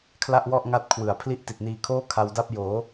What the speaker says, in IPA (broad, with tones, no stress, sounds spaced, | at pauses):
kʰ l a˥˩ ʔ w ɔ˥˩ ʔ ŋ a˦˥ t̚ kʰ w ɯ˩˦ a̯ pʰ l i˥˩ ʔ t i˨˩ t̚ n iː˧ kʰ oː˥˩ kʰ a˧ w d a˥˩ p̚ j oː˩˦